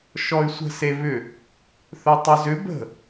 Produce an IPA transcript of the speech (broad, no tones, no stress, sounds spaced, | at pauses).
ʃ ɔ y̯ sʷ ə̤ s e β ʏ | θ œ tˤ œ z ʏ b ə̤